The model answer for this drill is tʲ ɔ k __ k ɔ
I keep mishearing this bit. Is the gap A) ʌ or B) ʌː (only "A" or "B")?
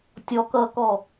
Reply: B